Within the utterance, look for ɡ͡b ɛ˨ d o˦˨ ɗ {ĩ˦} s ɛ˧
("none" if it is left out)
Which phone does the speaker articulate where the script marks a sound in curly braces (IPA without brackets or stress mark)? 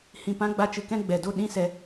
ĩ˦